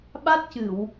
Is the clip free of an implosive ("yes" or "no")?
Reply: no